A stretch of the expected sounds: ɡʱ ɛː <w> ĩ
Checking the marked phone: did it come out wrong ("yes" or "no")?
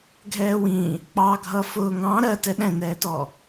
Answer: no